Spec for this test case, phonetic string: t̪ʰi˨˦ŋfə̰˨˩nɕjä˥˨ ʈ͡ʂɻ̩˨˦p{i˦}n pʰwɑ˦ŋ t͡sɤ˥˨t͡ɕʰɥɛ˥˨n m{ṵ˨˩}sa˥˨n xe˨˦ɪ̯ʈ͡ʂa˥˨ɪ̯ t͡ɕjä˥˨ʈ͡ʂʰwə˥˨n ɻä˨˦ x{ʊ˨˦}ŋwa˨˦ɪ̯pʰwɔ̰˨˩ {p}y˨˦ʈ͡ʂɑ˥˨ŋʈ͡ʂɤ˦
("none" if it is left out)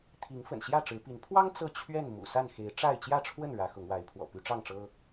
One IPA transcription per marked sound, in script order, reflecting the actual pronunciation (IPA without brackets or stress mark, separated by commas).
i˨˦, ṵ˨˩, ʊ˨˦, p